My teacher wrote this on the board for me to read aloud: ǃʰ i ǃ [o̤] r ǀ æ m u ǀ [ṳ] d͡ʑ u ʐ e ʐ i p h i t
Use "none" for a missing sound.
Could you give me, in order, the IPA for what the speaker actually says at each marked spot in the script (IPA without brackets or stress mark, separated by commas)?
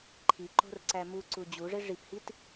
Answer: o̤, u